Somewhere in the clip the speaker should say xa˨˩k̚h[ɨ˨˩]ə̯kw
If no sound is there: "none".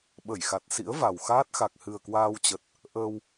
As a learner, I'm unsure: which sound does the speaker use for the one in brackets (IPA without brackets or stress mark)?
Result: ɨ˨˩